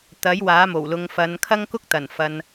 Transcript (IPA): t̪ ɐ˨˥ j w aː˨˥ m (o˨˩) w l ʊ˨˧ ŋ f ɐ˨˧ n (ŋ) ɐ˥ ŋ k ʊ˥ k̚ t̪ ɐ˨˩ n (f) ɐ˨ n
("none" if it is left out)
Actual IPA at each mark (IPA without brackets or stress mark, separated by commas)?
o˨˩, kʰ, f